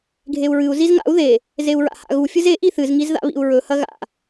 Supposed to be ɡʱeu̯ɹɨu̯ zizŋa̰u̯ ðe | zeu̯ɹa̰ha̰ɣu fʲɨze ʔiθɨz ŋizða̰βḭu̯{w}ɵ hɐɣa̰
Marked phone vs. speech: incorrect: ɹ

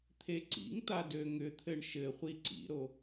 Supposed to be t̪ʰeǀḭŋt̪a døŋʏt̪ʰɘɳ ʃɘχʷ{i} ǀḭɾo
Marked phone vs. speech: correct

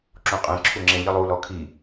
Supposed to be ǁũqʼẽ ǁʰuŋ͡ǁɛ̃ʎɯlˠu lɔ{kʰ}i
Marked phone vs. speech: correct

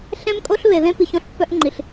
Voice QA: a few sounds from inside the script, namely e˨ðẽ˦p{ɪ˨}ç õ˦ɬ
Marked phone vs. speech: incorrect: i˨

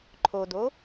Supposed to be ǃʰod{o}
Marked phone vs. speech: correct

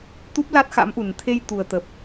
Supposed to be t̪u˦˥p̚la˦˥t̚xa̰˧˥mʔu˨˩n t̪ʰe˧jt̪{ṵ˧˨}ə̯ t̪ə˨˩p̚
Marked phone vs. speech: incorrect: u˨˩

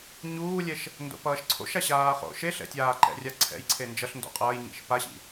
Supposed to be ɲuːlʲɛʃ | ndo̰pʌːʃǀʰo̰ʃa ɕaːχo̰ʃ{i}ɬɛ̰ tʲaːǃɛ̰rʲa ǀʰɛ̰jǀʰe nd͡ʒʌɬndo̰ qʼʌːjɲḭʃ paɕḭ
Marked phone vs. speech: incorrect: e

